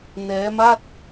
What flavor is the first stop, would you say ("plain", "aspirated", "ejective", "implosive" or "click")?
plain